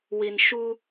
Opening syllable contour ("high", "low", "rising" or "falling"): low